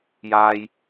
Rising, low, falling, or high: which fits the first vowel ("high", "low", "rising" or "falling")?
high